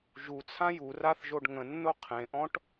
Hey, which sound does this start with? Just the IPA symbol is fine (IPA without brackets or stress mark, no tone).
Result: ʒ